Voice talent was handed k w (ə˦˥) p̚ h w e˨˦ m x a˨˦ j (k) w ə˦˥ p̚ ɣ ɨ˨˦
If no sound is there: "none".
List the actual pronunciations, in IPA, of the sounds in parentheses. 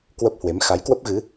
ə˦˥, k

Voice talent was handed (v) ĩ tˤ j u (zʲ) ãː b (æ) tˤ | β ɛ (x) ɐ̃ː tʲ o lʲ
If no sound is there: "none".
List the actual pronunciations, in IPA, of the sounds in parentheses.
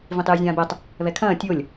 v, zʲ, ɛ, kʰ

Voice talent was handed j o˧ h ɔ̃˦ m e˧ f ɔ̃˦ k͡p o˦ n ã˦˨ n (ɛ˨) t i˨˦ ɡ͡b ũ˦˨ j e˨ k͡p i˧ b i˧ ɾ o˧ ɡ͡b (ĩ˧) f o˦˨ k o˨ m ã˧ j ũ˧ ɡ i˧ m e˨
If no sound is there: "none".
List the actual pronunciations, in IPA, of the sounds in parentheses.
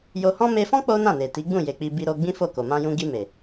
e˨, ĩ˦

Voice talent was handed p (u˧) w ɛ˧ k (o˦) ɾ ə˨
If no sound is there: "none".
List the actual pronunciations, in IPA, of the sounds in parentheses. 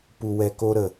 u˧, o˦

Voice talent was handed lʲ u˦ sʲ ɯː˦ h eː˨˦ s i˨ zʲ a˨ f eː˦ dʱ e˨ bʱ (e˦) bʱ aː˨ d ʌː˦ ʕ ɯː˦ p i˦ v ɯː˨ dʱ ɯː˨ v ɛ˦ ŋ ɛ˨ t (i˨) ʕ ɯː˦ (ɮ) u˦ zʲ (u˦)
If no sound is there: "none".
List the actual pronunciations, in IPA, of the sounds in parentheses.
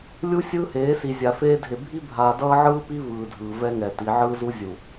i˦, i˨˦, z, u˨

